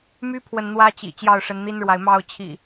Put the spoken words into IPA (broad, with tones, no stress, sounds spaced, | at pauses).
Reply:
m y˦ pʰ w ə˨ n n̪ w ä˦ t͡ɕ ḭ˨˩ t͡ɕ j ɑ˥˨ ʊ̯ ʂ ə˨˦ n n̪ i˦ n ɻ w a˨ ɪ̯ m ɑ˥˨ ʊ̯ t͡ɕʰ ḭ˨˩